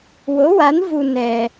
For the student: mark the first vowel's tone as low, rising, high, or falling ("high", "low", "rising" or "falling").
rising